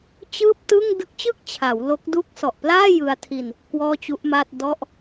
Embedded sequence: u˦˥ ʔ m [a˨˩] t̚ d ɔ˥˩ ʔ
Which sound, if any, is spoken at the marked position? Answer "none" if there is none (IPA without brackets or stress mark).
a˥˩